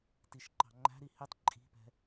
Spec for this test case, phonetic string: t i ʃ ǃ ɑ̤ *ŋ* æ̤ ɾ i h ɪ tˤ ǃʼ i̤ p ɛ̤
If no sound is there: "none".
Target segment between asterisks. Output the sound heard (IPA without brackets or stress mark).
ŋ͡ǃ